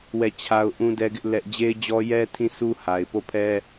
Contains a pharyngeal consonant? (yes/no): no